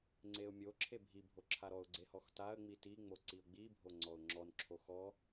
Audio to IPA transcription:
ŋ͡ǀ e ʊ̯ mʲ o ǁʰ e bʱ i bʱ o ǁʰ a ɾ ɔ ʊ̯ ɡ͡ǀ e h ɔ x t a ə̯ ŋ͡m i t i ŋ͡m o ǀ i ʊ̯ ɡ͡b i bʱ o ŋ͡ǀ ɔ ʊ̯ ŋ͡ǁ ɔ n ǁʰ o x ɔ

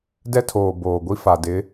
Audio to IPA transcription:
d ɛ˦ tʰ oː˨ b oː˨ ɡʷ i˦ f a˨ d ɪ˨˦

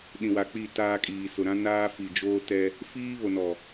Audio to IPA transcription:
ɗ ĩ˨ w a˨ k͡p i˦˨ t aː˦ kʼ iː˨ s ʊ˨ ɾ ã˦ n aː˦ f i˨ d͡ʒ oː˦ t ɛ˦ | f iː˦ β o˨ n ɔ˨

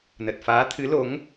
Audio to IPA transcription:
n ə˨˩ t̚ f aː˨˦ t̪ʰ ɨ˨˦ l o˨˦ ŋ

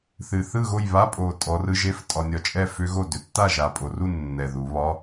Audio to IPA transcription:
θ ɨ˨˩ θ ɯ˥˨ ɣ o˥˨ j β a˧˥˧ pʼ o˨˩ tʼ ɔ˩˧ r ɯ˧ ʒ e˧˥˧ f tʼ ɒ˧ nʲ ɒ˧ t͡ʃʼ ɛ˥˨ f ʏ˦˥ ɣ o˥˨ d ʏ˩˧ tː a˥˨ ʒ a˨˩ pʼ o˨˩ r u˥˨ nː ɛ˨˩ ð u˩˧ β ɒ˧˥˧

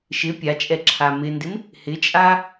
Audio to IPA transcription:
ʃ ɪ pʲ a t͡ʃʼ ɛ ǁʰ a m ɪ n d ɪ m | h ɪ t͡ʃʼ a

